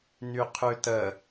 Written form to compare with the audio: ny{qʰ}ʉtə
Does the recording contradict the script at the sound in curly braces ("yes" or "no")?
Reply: no